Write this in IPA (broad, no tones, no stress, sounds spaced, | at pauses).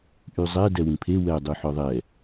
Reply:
ʔ y zˤ ɛ d ɛ w ĩ pʰ e w ɛ dˤ y ħ œ ðˤ ɛ